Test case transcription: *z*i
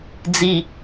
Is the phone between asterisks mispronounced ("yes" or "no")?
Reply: yes